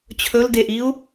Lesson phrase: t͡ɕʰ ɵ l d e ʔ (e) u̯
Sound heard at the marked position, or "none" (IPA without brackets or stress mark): i